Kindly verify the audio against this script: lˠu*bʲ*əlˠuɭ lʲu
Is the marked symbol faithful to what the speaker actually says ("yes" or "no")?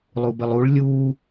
no